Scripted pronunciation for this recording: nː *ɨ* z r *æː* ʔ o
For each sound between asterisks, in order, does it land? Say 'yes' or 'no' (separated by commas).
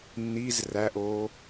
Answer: no, no